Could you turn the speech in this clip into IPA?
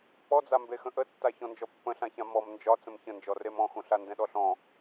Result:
k͡p ɔ d͡z a m b e x ə̃ ʔ ə tː a ç ɔ̃ n d͡ʒ ɔ pː ə̃ ɬ ã ç ã m ɔ m n d͡ʒ ɒ t͡s ə̃ m ç ə̃ n d͡ʒ ɔ r e m ɔ̃ x ũ ɬ a n d ɛ̃ ɗ ɔ ɬ ɔ̃

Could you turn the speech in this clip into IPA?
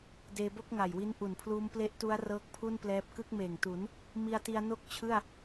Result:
d eː˧ b o˥˩ k̚ ŋ a˨˩ j w i˦˥ n ʔ u˨˩ n pʰ l uː˦˥ m p l e˦˥ ʔ t u˦˥ a̯ r ɤː˦˥ k̚ pʰ u˥˩ n p l ɛː˦˥ p̚ k ɯ˦˥ k̚ m eː˨˩ ŋ t u˩˦ n | m i˧ a̯ t i˧ a̯ n o˥˩ k̚ t͡ɕʰ ɯ˥˩ a̯

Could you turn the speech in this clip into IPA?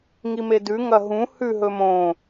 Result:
ŋ i m e d ʉ ŋ ɐ ɦ ũ h ʉ ɦ ɵ m õ

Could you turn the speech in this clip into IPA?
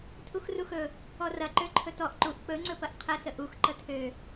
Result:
tʰ u x r u x ɵ | ɔ r ɐ ǃ ø ǃʰ ɵ t ɔ ʔ ǃ u ʔ k͡p ɵ ŋ͡ǀ ɵ p ɐ ʔ qʰ ə s ə ʔ u x ǃ ə tʰ ø

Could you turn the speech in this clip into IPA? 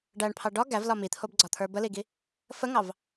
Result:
ɖ æ ɳ pʰ ɑ ɖ ɒ ɡ æ v l ɒ m i t̪ʰ o b ɡ͡ǀ ɒ t̪ʰ ə˞ b ə l i ɡ i | f ə ŋ ɑ v

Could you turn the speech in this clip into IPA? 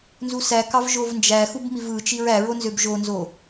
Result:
n z u s æ k ɑ v ʒ o v n d͡ʒ æ x u b m i v ɯ t͡ʃ i ɹ æ ɹ o n z ø b ʒ o n z o

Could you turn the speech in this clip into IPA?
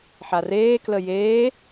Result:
ħ a r eː k l ə j eː

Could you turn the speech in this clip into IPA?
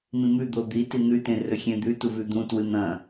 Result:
m ĩ m ʉ d̪ o d̪ i t i n̪ ʉ t ẽ r ɵ xʲ ẽ d̪ ʉ t u v ʉ d̪ ũ t w ɨ n̪ ɐ̃

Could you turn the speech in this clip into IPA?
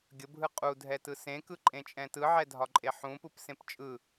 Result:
ɡʲ ə bʱ ɯ qʼ u dʱ ɛ t ɯ s ẽ k ɯ ǃʼ ẽ t͡ʃʼ ɛ̃ t ɯ ʕ ɛ dʱ ɒ ǃʼ e ħ ũ p ɯ p s ẽ p t͡ʃʼ ɯ

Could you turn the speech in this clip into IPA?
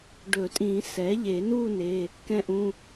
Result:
ɖ ɵ˨˩˦ tʼ ĩ˨˩˦ s ɛ˩˥ ʎ e˨˩˦ n u˥˧ n e˩˧˩ | k ɛ̃˧˥ ʔ ũ˩˧˩

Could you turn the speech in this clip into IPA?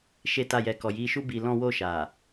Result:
ʃ e˦ t a˦˨ j ɛ˧ k ɔ˨ j i˨˦ ʃ u˦ b i˧ l ɔ̃˦ w o˦˨ ʃ a˨

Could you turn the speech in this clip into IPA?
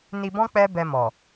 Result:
n i˧ b ɔ̃˦ k͡p ɛ˦ b ɛ˧ m ɔ˨

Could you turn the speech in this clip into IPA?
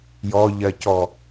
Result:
j ɔ ʎ ɜ c ɔ

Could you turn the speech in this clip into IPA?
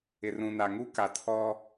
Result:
ɪ˨ r ũ˨ n a˨ ŋ u˦ k a˨ tʰ ɔ˦

